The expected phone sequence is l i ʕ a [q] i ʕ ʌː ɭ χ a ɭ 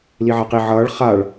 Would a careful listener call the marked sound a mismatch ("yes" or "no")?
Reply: no